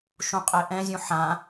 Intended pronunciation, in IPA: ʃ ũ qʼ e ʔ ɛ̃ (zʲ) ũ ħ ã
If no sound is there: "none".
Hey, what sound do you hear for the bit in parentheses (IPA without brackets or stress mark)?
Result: zʲ